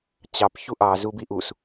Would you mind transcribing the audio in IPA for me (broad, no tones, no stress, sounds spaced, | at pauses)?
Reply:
t͡ɕ ɑ p ç u ʔ ɑ z u b i ʔ u s